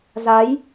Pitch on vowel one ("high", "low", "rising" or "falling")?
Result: rising